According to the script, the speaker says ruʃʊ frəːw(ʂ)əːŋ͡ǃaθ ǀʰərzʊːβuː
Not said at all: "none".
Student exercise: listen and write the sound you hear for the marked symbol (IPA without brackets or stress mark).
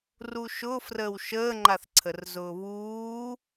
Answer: ʃ